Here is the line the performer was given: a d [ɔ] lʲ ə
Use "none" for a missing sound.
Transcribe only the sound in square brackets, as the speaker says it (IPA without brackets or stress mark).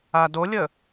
o